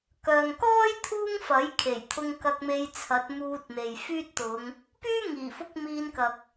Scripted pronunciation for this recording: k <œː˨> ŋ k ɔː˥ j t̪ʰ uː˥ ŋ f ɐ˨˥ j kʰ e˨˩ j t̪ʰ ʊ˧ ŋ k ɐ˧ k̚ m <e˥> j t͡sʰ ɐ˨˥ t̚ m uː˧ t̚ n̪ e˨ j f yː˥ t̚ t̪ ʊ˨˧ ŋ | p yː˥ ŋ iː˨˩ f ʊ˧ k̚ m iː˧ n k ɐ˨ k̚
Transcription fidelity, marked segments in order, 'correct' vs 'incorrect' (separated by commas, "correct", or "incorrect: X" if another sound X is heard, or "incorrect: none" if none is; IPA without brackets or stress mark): correct, incorrect: e˧